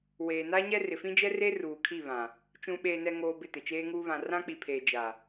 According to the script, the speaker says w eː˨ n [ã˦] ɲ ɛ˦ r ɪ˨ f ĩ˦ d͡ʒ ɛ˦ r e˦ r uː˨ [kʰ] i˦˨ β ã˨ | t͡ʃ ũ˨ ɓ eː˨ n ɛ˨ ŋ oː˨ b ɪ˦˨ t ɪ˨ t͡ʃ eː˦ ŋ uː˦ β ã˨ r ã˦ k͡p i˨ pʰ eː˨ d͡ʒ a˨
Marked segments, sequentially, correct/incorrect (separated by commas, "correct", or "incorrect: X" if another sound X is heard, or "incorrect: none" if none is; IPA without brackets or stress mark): incorrect: a˦, correct